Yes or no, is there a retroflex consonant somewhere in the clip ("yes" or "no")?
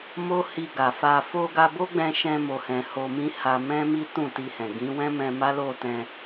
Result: no